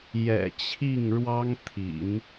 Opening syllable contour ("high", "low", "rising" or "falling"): low